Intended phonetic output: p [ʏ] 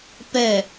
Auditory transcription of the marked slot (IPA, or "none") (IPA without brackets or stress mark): ɛ